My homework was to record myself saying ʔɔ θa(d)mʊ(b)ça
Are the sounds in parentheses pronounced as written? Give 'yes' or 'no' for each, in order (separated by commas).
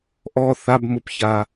no, no